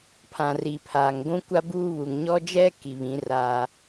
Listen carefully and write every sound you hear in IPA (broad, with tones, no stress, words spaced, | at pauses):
pʰã˨ri˨pʰa˨ŋ ɡʷũ˦kʷa˦buː˦βu˨ŋ ɲɔ˦d͡ʒɛ˦ ki˨βĩ˨˦ra˦